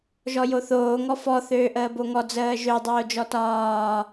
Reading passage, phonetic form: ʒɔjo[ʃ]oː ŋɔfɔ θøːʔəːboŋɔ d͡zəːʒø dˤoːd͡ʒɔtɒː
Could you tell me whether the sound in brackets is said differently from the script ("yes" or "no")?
yes